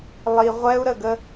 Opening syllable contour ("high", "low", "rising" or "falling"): low